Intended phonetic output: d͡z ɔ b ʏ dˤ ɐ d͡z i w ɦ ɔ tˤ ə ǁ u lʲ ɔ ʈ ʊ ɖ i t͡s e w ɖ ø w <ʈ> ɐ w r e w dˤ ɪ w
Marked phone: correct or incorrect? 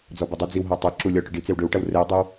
correct